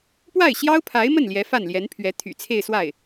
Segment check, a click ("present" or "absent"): absent